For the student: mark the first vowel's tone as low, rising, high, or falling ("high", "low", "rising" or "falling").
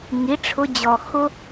rising